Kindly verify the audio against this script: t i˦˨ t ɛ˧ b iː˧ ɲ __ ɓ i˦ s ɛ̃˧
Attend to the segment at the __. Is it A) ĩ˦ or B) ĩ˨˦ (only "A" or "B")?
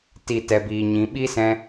B